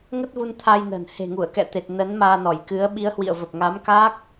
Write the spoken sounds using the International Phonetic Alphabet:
ŋ ə˦˥ t̚ v u˧ n t̪ʰ a˧ j n ə̤˨˩ n h e̤˨˩ ŋ u˧˩ ə̯ k ɛ̰˧˨ t̪ e˨˩ t̚ n ə˨˦ n m aː˧ n ɔ˧˩ j k ɨ˨˦ ə̯ ɓ i˨˦ ə̯ h w ḭ˧˨ ə̯ v ə˨˩ p̚ ŋ a˨˦ m k aː˦˥ k̚

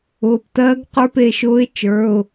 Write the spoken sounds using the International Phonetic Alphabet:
ʊː˩˧˩ p t ɜː˧˥ ɡ q ə˞˧˥˧ p e˩˧˩ ʃ ʊː˧˥ ɪ̯ t͡ʃ ə˞˩˧˩ ʊ̯

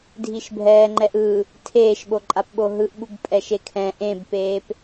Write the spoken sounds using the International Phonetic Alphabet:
dʱ i ʃ bʱ ɛː ŋ͡ǃ ɛ ʔ ɯ | tʰ eː ʃ ɓ o ǃʼ a p ɓ o ɦ ɯ ʔ ɓ u b pʼ ɛ ʃ e kʰ ɛ̃ ʔ ẽ b p eː p

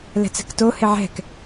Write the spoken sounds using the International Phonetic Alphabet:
l ɛ̤ t͡s ɛ̤ k t o h ɪ ʕ ɛ̤ k

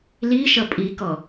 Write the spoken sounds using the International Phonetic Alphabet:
l i ʃ ʌ pʼ i k ɔ

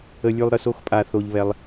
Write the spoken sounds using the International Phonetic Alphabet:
ə˦ lʲ ʉ˦ lˠ ɾ ə˧ s o˦ x pʼ a˧ θ o˧ ʎ β ɛ˧ lˠ

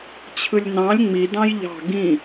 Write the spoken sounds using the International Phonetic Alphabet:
t͡ɕʰ ɯ lʲ n ɑ̃ lʲ ŋ͡m i d ɑ̃ j ʎ ɑ̤ ɡ ĩ

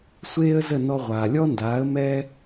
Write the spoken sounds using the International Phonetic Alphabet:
sʷ eː˥ ə̯ z ə˥˩ n ɔ˧ ʁʷ aː˩ lʲ ɔ˥ n d aː˩˥ ə̯ m ɛ˥

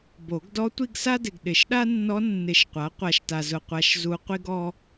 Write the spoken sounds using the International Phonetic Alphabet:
b o˨˩˦ ɡ d ɔ˧˥ tʷ i˥˧ ɡ s a˥ d ɪ˨ ɡ ɗ ɪ˨˩˦ ʃ ɗ a˥ nː ɔ˧˥ nː ɪ˨˩˦ ʃ qʷ a˩˥ qʷ a˨ ʃ t a˨ z ʊ˨ qʷ a˨ ʃ z u˧˥ qʷ i˥ ɡ ɔ˥

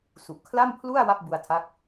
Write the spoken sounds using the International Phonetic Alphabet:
s u˨˩ ʔ kʰ l a˥˩ m pʰ l u˥˩ a̯ w a˥˩ p̚ b u˧ a̯ tʰ a˦˥ k̚

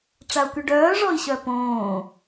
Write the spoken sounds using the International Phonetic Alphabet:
ʈ͡ʂ a u̯ k y ɖ œː ʐ ɔ i̯ ɕ œ p õː

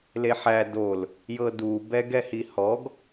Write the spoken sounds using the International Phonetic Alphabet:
l e ħ æ d o l | j ɤ d u b ɛ ɡ ɛ h i h ɔ ɡ

